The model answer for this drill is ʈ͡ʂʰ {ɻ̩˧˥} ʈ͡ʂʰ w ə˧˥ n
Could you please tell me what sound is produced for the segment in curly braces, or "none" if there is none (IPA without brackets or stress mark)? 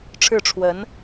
ɻ̩˥˩